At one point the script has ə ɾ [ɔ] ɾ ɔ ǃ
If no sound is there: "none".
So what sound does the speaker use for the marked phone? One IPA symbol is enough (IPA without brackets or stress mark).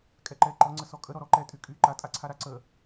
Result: ɔ